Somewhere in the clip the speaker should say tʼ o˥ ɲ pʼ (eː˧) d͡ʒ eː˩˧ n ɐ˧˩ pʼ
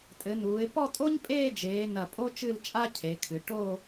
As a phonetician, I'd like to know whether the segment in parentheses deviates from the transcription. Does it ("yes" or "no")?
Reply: yes